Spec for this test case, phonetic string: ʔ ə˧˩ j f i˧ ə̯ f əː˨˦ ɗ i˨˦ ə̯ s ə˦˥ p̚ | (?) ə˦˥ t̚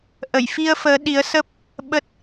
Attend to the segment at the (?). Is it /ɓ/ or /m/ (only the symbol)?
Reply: ɓ